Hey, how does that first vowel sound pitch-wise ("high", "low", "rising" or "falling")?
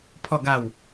low